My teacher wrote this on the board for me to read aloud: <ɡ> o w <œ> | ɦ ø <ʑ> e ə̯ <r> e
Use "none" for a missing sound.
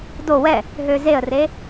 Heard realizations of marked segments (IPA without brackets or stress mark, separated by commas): d, ɛ, z, r